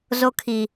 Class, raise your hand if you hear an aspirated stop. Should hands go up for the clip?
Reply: yes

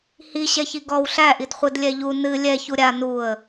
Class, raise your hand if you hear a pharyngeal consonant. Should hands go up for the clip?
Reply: no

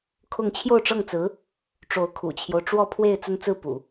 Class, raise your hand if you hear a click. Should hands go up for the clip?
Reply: no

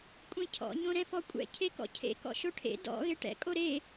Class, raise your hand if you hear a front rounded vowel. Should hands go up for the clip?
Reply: no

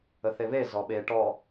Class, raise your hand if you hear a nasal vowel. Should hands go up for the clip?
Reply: no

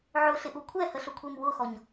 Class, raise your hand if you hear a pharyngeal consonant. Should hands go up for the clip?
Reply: yes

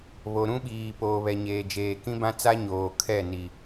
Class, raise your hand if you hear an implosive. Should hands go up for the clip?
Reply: yes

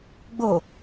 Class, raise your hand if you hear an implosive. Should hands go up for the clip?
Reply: no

